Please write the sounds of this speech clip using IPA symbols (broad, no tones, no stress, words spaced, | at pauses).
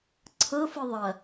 ǀʰɤfɯ ðˤɐ